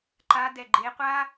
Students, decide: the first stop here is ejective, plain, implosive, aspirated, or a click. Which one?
click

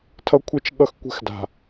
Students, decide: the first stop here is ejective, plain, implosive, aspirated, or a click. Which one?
aspirated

